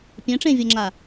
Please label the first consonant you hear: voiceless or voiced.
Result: voiceless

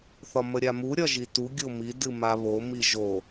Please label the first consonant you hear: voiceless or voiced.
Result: voiceless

